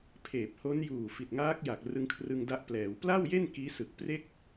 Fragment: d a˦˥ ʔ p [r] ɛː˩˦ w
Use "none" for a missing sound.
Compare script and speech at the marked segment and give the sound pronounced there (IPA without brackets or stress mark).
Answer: l